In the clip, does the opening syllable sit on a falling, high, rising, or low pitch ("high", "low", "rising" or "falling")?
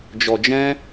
low